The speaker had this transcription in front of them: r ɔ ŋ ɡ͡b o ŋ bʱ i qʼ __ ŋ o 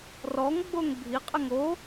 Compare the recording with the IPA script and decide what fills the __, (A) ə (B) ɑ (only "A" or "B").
A